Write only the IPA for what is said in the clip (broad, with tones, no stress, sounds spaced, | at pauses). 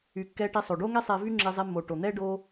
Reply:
y˩ kː ɛ˧ ʈ e˧ sˤ o˩ ɖ o˥ ŋ e˥ sˤ ɛ˧ v y˥ ŋ͡ǁ e˧ zˤ ɛ˧ mː o˩ ʈ o˩ n̪ ɛ˥ ɖ o˧